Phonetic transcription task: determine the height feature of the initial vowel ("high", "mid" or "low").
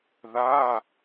low